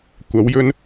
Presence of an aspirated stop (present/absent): absent